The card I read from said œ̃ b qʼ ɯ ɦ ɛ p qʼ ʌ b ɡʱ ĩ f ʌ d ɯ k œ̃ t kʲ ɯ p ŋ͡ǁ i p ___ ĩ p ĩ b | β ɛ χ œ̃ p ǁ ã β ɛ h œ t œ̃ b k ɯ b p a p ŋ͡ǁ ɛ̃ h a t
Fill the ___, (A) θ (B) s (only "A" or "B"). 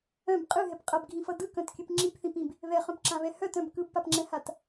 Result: A